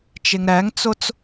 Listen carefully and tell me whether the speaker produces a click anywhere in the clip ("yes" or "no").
no